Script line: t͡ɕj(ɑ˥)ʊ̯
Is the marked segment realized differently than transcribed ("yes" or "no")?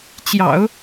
yes